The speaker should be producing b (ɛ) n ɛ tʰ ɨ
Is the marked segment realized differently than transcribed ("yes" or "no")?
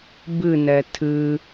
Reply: yes